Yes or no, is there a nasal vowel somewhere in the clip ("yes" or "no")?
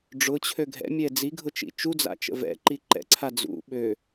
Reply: no